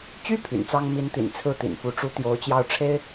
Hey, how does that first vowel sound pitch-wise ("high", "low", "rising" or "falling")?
high